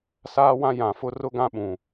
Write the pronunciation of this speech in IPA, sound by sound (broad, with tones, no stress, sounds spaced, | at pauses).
s aː˦ w ã˦ j ã˨ f ʊ˦ r ʊ˦ ɡ ã˦ ɓ ũ˨